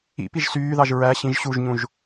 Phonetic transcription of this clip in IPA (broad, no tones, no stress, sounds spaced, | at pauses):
ḭ p i ʒ s yː ð ɑ ʒ ɹ æ ɕ ĩ ʒ ɕ u ʒ ɲ ũ ʒ